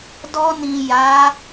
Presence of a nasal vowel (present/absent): present